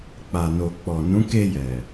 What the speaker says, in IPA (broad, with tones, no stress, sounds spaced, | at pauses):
k͡p a˨ n o˨ k͡p ɔ˨ n ũ˨˦ k e˧ j ɛ˨